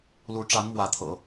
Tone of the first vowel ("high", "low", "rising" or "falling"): rising